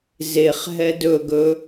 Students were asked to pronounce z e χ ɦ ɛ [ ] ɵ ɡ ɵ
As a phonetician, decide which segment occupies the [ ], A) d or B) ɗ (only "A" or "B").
A